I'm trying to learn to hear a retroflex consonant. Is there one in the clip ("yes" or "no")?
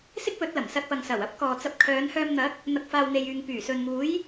no